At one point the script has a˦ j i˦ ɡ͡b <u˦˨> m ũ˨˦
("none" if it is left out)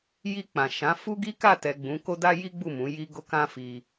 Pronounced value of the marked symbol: u˦˨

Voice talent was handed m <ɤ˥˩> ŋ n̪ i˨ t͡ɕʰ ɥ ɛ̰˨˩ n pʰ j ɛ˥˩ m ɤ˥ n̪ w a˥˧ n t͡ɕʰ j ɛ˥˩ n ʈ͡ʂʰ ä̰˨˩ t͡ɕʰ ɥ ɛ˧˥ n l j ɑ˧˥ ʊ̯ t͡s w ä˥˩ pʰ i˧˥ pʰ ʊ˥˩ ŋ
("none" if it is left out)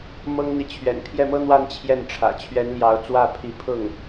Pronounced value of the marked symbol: ɤ˥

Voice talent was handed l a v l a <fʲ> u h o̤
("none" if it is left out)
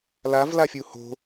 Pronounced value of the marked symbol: fʲ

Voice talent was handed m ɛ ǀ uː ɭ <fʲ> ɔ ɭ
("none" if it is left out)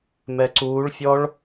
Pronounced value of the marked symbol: fʲ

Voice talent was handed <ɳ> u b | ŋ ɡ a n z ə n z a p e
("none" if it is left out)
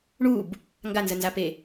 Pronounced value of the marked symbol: ɳ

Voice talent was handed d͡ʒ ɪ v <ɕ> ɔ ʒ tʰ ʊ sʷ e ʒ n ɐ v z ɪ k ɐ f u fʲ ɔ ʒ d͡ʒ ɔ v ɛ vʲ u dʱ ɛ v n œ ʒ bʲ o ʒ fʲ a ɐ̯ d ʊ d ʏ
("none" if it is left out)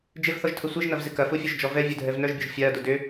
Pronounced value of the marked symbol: θ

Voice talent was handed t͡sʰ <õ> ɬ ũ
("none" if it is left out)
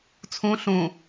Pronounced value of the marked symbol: ũ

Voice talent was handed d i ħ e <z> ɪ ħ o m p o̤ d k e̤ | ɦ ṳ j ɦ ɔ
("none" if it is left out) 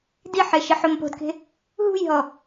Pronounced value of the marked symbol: ʃ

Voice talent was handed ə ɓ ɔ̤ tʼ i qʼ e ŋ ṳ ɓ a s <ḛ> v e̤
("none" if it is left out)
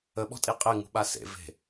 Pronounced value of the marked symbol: ḛ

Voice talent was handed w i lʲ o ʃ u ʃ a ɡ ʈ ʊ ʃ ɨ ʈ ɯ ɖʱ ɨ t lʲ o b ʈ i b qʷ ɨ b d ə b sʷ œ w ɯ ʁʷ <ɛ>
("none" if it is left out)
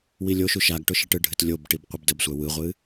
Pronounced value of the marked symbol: ɨ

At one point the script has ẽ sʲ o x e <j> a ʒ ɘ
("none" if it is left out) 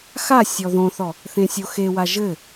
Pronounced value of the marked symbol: w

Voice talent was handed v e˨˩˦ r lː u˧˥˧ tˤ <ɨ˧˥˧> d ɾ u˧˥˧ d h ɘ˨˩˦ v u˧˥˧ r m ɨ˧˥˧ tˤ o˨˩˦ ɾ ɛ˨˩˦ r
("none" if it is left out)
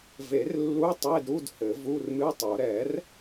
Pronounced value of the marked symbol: e˧˥˧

